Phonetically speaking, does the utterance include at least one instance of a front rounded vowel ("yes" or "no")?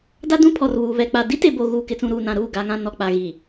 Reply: no